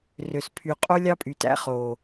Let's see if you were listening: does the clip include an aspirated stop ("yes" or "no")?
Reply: yes